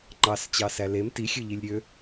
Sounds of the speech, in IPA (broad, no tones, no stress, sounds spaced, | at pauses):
ŋ͡ǃ ɑ s t͡ɕ ɑ s æ l e m t i xʲ ø ʎ i lʲ ɾʲ ø